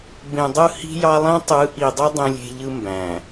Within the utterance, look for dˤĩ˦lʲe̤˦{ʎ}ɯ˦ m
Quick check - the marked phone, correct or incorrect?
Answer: correct